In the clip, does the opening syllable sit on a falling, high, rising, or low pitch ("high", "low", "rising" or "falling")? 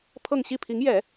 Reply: falling